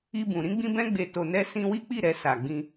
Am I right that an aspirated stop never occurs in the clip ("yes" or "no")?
yes